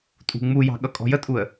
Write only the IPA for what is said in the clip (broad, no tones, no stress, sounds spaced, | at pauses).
tʼ ṳ ŋ͡m u j ɑ̤ ɠ ʌ kʼ ɔ̤ j ə tʼ u ə̯